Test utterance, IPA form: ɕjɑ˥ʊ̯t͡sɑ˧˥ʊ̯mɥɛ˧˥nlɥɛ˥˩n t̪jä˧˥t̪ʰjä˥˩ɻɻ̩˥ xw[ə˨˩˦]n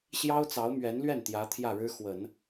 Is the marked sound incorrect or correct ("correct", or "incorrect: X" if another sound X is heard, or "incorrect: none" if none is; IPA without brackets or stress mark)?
correct